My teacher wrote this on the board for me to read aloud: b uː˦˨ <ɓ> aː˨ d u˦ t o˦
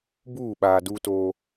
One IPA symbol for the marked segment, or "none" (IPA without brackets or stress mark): ɓ